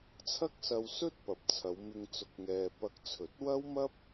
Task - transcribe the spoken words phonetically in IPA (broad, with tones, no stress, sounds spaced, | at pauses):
t͡sʰ ɐ˥ k̚ s ɐ˧ w s ɵ˥ t̚ p ɐ˨ p̚ t͡sʰ ɐ˨˧ w m ɪ˧ ŋ t͡s ʊ˨˥ k̚ ŋ ɛː˨ p ɐ˧ k̚ t͡sʰ ɵ˨˥ t̚ w ɐ˥ w m ɐ˥ p̚